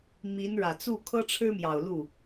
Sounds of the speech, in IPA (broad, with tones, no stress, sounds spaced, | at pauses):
m i˧˥ n ɻ ä˨˩ t͡s u˥˩ kʰ ɤ˥ ʈ͡ʂʰ ɻ̩˥ m j ɑ˨˩ ʊ̯ l u˥˩